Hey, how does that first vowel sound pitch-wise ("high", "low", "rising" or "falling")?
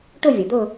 falling